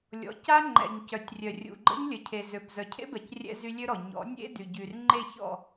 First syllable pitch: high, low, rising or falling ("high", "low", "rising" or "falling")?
rising